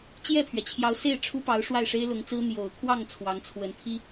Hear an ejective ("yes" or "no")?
no